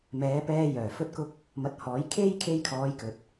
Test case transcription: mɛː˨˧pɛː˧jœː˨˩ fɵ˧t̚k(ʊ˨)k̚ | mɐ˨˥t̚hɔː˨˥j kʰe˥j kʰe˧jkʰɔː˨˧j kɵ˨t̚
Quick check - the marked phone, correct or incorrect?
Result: incorrect